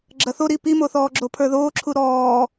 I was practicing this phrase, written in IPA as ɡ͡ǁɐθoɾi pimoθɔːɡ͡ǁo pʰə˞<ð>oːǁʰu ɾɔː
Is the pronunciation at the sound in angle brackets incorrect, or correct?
correct